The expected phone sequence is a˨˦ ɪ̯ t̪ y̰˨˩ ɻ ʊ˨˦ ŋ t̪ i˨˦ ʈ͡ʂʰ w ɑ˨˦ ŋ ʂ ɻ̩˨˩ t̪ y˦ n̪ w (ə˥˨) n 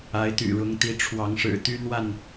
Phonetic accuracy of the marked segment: incorrect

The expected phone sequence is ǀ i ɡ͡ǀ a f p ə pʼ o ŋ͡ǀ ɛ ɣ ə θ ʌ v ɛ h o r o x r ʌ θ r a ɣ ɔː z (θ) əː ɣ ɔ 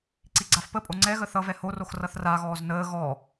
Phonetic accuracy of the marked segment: incorrect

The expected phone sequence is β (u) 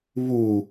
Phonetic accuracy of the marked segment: correct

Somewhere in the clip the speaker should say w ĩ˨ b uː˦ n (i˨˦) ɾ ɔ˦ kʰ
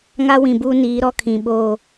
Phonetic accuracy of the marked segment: incorrect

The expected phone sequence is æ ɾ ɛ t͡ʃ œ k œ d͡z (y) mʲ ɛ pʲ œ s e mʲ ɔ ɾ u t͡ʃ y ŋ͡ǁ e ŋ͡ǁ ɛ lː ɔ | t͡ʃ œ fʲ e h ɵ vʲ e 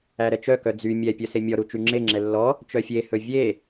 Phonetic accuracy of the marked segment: correct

